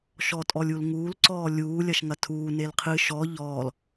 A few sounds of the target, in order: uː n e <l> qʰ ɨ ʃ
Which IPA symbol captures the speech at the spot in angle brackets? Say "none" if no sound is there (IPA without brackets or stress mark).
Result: l